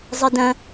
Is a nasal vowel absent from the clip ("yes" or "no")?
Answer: no